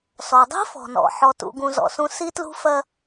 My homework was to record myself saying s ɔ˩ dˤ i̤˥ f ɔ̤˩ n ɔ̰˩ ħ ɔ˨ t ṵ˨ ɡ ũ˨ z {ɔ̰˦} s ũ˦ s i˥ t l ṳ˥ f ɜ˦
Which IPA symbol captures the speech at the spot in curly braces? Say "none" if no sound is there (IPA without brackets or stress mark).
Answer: ɔ̰˩